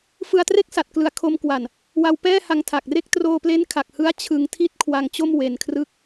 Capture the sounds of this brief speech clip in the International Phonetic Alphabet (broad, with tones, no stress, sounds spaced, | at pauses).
f ɯ˧ a̯ t r e˥˩ k̚ s a˨˩ t̚ k l ɯ˨˩ a̯ kʰ o˧ m k w a˨˩ n | w a˧ w p ɛː˥˩ h a˧ ŋ tʰ a˨˩ k̚ r e˦˥ k̚ t r oː˧ p l e˦˥ n kʰ a˨˩ k̚ h ɯ˦˥ a̯ t͡ɕʰ ɯ˧ ŋ tʰ i˥˩ t̚ kʰ w a˧ ŋ t͡ɕ o˥˩ m w e˧ n kʰ r ɯ˥˩ k̚